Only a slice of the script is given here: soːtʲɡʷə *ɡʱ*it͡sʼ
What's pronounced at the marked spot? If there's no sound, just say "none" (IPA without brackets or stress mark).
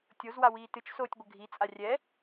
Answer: ɡʱ